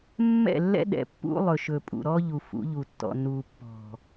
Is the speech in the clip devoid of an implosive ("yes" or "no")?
no